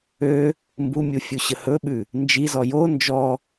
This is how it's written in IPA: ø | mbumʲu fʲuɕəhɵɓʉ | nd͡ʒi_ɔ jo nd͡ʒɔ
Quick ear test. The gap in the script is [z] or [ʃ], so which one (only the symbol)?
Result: z